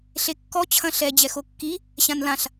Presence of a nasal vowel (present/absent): present